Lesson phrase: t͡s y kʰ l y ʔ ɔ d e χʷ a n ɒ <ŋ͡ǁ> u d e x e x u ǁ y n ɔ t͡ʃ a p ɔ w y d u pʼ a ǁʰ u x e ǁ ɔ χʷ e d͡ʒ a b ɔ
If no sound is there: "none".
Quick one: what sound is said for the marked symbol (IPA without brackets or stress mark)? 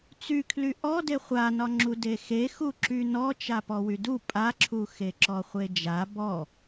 ŋ͡ǁ